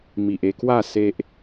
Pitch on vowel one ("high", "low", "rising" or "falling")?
low